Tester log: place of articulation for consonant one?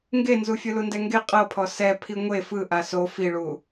velar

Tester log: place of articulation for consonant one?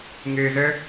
velar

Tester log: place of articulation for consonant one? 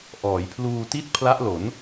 glottal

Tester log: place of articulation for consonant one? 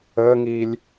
velar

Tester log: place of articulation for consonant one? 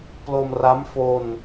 labial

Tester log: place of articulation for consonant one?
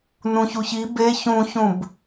alveolar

